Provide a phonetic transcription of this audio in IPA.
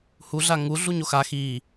huɮa ŋuɮuɲ oxa xi

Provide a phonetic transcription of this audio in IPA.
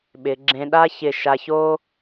ɓɪ˩˧ ɡ͡ǁẽ˧ɗa˥çɪ˧˩ ʃa˧ço˥

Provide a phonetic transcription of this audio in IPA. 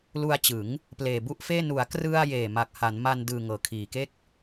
lu˧a̯t͡ɕɯ˩˦ŋ | pleː˨˩bu˥˩ʔfeː˥˩ nu˩˦a̯krɯ˧a̯ jeː˨˩ma˨˩k̚ha˩˦nma˧n dɯː˧ ŋɤː˩˦kʰiː˩˦ke˥˩k̚

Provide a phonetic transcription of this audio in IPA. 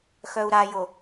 xœu̯ɾajo

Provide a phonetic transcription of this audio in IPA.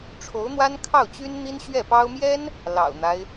ʈ͡ʂʰo˧˥ʊ̯n̪wa˥nkʰɑ˥˩ʊ̯t͡ɕy˥n n̪i˥nɕɥɛ˥˩pɑ˥ʊ̯ mjɛ˥n | lɑ̰˨˩ʊ̯n̪a˦ɪ̯

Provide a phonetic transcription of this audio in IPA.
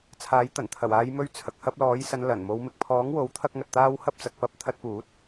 t͡sʰaː˨˥jt̪ɐ˨˩n t̪ʰɐ˨˩waː˨˧jmɵ˧ɥ t͡sʰɐ˨k̚hɐ˧p̚lɔː˨˥jsɐ˨˧n lɐ˨˩nmo˨˧w mɪ˨k̚pʰɔː˨˥ŋwo˨˥w t̪ʰɐ˥k̚ŋɐ˧t̚t̪aː˥w hɐ˥p̚t͡sɐ˨˥k̚ pɐ˧p̚ t̪ʰɐ˧t̚puː˨˥t̚

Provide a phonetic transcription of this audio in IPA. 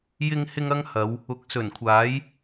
jɪ˧ŋhɪ˧ŋ ɐ˥ŋhɐ˨˧w | ʊ˨k̚ sɵ˨˩nkʷʰaː˨˥j

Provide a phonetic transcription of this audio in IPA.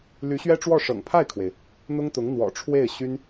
ly˧˥ɕɥɛ˥ʈ͡ʂwɔ˥˩ ʂɤ̰˨˩ŋpʰa˥˩ɪ̯kʰwe˩ɪ̯ | n̪ʊ˥ŋt̪ʊ˧˥ŋ n̪wɔ̰˨˩ ʈ͡ʂʰwe˥˩ɪ̯ ɕy˥n

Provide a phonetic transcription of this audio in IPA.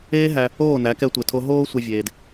eː˦ɦæ˧ | oː˦˨næ˨˦ kɛ˧tʷe˨tʰo˧ ɦoː˦sʷɛ˧ vʲeː˧d

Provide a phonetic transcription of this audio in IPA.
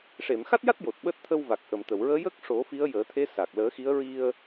ʂe˨˩˨mxa˦˥t̚ja˦˥t̚ jo˨˩t̚ɓəː˦˥t̚ t̪ʰə˧wva˨˩k̚ ʔə˨˩˨mt̪ə˨˩˨wɹəː˧˥ jə˦˥k̚ ʂo˨˩˦fi˧˥ə̯ jəː˨˩˦t̪ʰe˧˥sa˨˩k̚ ləː˨˩˦xi˧˥ə̯ɹi˧ə̯

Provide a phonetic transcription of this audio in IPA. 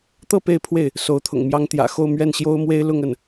t̪ɤ˥˧ pe˥˧ɪ̯pʰwe˥˩ɪ̯ | so˧˥ʊ̯t̪ʰʊ̰˨˩ŋmjɑ˥ŋ t̪jä̰˨˩xo˥˧ʊ̯ mɥɛ˥˩nɕjo˥ʊ̯mwe˥ɪ̯ lʊ˥˧ŋə˥˩n

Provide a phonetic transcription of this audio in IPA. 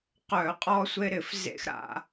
qœ˧˩˧qʼɔ˦sʷe˦ ɾɪ˧˩˧fzḛ˦x ɾa̰˦

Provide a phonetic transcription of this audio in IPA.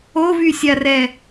ovysʲarɛ

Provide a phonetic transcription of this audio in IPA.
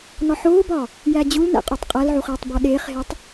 nɒħoːbɒ | jæd͡ʑulnæ̰ qʼotˤqʼælʕuχ eːtˤbɒɗeːχɦetˤ

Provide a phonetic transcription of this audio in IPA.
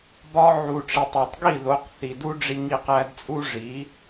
bɒ˧ʕu˩ʈ͡ʂi˩tˤ ɒ˩tˤ ɡi˥˩ðo˩˥qθi˩du˥ ɖ͡ʐi˧ŋi˧qæ˧dt͡sʼu˥ ʐi˩˥

